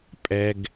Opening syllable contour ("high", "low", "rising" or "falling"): low